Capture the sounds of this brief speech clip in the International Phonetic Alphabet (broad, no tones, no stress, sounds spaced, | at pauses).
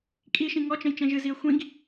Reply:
kʼ i ʃ ĩ ŋ ɔ t͡ʃ ə̃ j t͡ʃ ɛ̃ ʒ ɨ z i ə̯ xʷ ĩ ɡ